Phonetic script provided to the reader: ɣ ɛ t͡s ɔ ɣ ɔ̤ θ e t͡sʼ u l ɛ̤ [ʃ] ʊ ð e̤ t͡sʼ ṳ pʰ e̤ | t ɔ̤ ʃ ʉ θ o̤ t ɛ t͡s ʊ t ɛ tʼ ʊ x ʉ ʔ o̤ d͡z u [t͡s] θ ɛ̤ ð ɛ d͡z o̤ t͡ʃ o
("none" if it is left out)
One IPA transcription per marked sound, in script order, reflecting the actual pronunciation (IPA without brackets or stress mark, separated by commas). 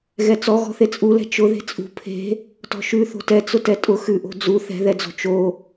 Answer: t͡ʃ, none